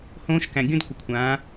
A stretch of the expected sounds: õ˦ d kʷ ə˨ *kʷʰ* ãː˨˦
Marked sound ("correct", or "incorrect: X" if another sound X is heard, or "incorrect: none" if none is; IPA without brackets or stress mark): correct